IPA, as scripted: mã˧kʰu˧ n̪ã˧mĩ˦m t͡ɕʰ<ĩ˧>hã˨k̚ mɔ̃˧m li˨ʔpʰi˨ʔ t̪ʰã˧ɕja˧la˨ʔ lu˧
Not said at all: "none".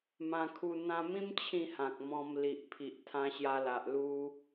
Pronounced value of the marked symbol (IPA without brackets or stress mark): ĩ˥˧